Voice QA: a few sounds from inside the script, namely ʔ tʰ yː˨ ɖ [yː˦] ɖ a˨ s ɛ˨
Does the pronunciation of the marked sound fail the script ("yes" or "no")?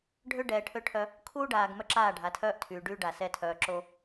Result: no